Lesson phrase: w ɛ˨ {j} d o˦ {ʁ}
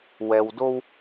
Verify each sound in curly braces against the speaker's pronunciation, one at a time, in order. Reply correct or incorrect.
incorrect: w, incorrect: w

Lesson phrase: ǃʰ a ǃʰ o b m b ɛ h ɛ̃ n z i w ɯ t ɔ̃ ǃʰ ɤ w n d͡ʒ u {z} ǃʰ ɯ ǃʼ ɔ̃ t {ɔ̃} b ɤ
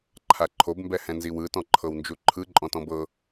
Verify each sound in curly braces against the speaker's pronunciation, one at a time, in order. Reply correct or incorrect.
incorrect: none, correct

